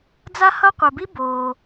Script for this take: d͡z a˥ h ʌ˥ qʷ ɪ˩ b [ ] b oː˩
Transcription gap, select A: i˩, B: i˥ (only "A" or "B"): B